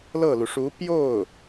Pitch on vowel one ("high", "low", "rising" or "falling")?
falling